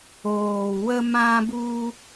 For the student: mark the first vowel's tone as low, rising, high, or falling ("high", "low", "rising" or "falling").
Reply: low